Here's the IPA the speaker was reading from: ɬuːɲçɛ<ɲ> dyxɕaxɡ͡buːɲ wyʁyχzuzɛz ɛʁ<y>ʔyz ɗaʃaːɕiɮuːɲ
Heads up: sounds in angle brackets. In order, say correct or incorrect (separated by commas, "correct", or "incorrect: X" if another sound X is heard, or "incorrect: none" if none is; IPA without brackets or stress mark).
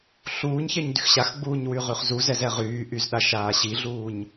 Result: correct, incorrect: yː